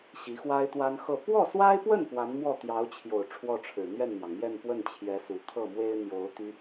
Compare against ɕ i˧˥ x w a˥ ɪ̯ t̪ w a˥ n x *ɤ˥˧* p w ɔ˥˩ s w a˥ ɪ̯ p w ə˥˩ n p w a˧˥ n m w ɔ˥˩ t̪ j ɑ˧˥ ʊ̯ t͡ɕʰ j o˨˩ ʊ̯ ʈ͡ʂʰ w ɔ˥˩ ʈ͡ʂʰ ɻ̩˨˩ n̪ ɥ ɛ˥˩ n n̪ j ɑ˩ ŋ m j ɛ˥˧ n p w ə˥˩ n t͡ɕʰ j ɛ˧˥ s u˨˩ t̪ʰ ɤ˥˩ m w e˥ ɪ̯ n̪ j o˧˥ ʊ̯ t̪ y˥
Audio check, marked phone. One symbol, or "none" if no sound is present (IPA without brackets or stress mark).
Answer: ɤ˥˧